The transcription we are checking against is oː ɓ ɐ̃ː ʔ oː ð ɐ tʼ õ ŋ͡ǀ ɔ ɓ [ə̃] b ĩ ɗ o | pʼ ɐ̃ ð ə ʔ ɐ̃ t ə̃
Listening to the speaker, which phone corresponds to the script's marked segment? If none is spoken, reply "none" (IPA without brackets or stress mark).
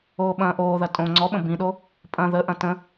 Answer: ə̃